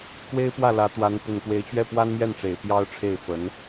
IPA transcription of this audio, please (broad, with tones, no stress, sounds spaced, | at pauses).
k w e˥ ɪ̯ p w ä˥˩ l ä˧˥ t̪ w a˧˥ n t̪ ə˨˩ n k w e˧˥ ɪ̯ t͡ɕ ɥ ɛ˥˩ p w a˥ n m j ɛ˥˩ n ʈ͡ʂ e˨˩ ɪ̯ p j ɑ˥ ʊ̯ ʈ͡ʂʰ e˥˩ ɪ̯ f ə˧˥ n